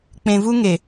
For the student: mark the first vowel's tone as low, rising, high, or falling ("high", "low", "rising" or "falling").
low